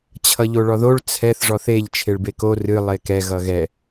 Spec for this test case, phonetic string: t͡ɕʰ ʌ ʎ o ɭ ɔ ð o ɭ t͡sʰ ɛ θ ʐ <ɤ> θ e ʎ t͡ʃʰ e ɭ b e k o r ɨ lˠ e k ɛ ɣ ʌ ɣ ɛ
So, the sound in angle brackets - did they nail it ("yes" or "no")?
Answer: no